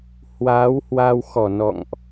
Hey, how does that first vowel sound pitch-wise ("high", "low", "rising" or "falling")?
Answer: rising